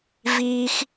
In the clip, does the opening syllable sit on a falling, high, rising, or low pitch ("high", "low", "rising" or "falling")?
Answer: high